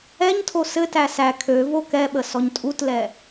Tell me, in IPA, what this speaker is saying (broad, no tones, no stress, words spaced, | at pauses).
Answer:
ɛɲtʰo sɘtæ sæ kʰøvo kɛɓə sɔɲtʼutlɛ